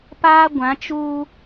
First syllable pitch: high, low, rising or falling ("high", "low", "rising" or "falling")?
high